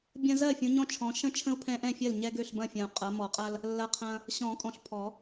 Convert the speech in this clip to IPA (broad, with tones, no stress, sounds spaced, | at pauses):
bʲ ɐ̃˦ z ɜ˥˨ fʲ ũ˨˦ ɲ ɔ̃˦ t͡ʃʰ ɔ̃˨˦ ʃ ə̃˦ t͡ʃʰ ə̃˦ u̯ pʰ ɛ̃˦ ʔ ɛ̃˥˨ fʲ ɜ˥˨ l ɲ ɛ˦ ɡ ø˥˨ ɬ b ɐ̃˥˨ fʲ ɐ̃˨ u̯ qʼ ɐ˨˦ m ɔ˨˩˦ qʼ ɐ˦ l | lː ɐ˦ qʰ ɐ̃˦ | ɕ ɔ̃˨˩˦ kʼ ɔ̃˨ ɬ pʰ ɔ˨˩˦